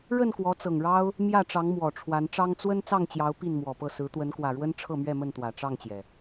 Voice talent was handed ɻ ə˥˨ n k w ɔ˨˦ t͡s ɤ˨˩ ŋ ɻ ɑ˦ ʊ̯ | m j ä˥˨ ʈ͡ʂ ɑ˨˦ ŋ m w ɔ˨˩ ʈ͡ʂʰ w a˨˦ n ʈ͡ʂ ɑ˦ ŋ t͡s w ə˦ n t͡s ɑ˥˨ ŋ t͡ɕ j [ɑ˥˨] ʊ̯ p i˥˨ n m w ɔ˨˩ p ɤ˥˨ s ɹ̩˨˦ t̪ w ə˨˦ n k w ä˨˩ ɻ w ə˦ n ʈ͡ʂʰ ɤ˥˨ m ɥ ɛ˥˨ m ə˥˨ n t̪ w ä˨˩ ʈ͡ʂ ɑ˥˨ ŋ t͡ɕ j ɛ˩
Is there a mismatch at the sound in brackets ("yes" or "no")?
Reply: yes